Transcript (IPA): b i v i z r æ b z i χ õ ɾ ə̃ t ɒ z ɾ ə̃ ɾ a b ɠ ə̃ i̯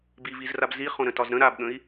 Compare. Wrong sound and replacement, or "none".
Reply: æ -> a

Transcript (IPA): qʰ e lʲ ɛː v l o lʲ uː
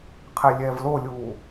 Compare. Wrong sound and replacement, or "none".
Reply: none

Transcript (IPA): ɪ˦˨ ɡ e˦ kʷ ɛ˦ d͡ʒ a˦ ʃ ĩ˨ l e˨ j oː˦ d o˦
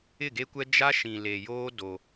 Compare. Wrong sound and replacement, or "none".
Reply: none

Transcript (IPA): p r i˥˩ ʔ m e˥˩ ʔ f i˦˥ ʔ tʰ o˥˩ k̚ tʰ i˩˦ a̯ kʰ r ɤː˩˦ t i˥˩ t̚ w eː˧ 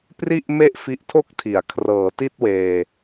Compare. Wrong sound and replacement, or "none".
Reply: none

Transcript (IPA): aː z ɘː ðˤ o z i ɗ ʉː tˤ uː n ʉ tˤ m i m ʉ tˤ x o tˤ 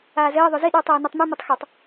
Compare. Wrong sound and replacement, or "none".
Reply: uː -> oː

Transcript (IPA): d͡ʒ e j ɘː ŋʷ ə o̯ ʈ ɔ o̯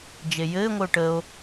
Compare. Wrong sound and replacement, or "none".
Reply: ɔ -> ə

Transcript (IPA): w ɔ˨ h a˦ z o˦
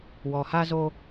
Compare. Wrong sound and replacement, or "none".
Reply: none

